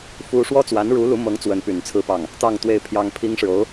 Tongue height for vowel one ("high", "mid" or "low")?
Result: high